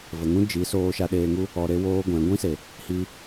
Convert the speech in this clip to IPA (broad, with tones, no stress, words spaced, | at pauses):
və˨ŋũ˦ d͡ʒi˨˦soː˧ʃa˧ ɗeː˧ŋu˦ | ɔ˧ɾe˦woː˦ɡʷɛ̃˨˦ ɡʷĩ˦se˨ | hi˧